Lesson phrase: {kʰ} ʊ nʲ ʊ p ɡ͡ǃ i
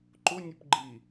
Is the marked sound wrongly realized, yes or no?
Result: yes